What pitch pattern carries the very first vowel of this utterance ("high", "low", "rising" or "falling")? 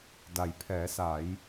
low